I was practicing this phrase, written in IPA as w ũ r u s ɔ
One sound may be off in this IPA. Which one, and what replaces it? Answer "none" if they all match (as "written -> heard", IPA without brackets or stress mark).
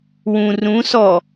u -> ũ